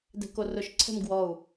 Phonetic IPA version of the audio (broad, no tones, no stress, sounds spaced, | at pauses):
d ɛ̤ k o r ʊ ʃ ǀʰ ɛ̤ m ɡ w ɔ u̯